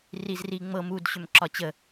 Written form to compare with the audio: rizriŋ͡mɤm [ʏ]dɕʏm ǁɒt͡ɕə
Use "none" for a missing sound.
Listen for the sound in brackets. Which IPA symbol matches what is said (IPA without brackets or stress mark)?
u